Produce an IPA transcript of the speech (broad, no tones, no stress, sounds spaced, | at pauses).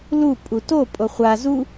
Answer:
l u pʼ u t o pʼ o χʷ a z u